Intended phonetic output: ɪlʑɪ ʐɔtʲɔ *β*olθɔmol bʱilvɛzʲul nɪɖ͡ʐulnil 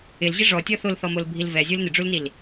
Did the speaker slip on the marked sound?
yes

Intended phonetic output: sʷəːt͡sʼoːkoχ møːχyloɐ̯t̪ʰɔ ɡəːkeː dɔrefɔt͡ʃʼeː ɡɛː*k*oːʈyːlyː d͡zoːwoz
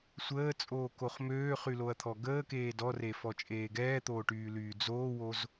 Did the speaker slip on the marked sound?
yes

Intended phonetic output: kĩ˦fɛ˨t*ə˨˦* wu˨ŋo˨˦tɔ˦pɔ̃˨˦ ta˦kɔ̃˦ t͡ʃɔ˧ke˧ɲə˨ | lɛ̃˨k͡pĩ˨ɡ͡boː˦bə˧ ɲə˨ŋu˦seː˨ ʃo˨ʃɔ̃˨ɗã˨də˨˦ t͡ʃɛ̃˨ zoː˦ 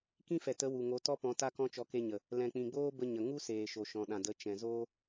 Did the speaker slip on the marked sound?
no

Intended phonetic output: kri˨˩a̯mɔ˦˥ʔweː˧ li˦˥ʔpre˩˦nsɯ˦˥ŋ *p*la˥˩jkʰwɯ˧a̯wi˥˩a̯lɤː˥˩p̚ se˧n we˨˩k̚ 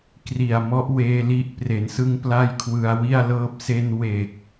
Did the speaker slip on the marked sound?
no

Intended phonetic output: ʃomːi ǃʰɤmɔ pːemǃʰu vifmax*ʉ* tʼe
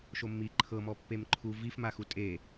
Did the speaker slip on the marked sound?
yes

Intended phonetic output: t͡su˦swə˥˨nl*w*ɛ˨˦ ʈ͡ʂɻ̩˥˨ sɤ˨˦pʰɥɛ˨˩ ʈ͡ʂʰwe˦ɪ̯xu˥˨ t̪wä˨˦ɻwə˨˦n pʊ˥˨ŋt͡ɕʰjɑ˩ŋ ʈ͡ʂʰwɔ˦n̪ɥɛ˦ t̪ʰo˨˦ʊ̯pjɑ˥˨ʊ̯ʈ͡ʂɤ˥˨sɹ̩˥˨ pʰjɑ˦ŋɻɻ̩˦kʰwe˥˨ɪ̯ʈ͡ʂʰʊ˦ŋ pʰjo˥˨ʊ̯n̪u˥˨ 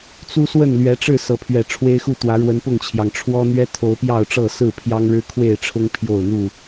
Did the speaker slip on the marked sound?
yes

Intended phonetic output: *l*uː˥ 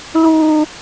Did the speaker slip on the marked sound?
no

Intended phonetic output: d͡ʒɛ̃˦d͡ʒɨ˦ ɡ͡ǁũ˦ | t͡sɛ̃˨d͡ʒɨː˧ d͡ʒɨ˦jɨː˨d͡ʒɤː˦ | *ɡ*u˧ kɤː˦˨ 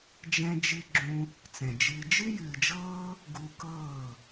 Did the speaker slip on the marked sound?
no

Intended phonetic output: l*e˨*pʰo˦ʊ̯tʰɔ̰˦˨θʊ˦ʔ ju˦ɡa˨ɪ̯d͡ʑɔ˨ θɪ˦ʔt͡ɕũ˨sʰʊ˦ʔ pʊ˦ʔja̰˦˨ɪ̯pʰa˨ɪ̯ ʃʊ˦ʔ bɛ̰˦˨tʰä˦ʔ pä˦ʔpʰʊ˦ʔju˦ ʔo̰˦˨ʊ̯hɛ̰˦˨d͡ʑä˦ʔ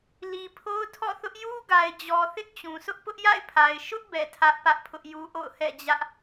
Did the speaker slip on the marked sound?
yes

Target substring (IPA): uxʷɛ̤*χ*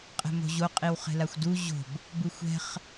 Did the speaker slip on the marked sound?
no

